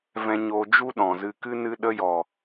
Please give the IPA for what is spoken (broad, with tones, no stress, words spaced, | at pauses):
vɛ̃˧ɲoː˧ d͡ʒu˦ɗɔ̃˨zɨ˧kɨ˦ nɨ˧ɗə˧jɔ˨